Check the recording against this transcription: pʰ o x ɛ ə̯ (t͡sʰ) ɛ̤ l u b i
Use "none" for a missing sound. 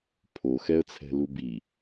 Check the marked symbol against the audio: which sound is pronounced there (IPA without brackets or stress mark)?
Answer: t͡sʰ